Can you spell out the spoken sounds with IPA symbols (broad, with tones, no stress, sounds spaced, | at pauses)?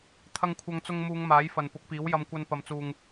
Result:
t̪ʰ ɐ˧ ŋ kʷʰ ɐ˧ ŋ t͡s ʊ˧ ŋ m uː˨˧ ŋ m aː˨˥ j f ɐ˨ n p ʊ˨˥ k̚ p iː˨˥ w j ɐ˧ m kʷ ɐ˧ n p ɐ˨˧ m t͡s uː˨ ŋ